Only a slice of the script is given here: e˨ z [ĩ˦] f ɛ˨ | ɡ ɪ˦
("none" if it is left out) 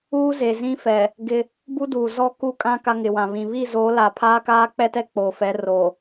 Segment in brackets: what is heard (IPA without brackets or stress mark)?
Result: ĩ˦